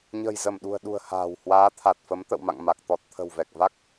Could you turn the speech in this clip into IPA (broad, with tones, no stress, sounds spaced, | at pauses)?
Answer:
ɲ ə̤˨˩ j z ə˧˩ m ɗ ṳ˨˩ ə̯ ɗ ṳ˨˩ ə̯ h a̤ː˨˩ w h w aː˨˦ t̪ʰ a˨˩ t̚ f ə˨˦ m t̪ ə̰˧˨ w m a̰˧˨ ŋ m a˨˩ k̚ t̪ ɔ˨˩ t̚ t̪ʰ ə̤˨˩ w v ɛ˨˩ k̚ v a˦˥ k̚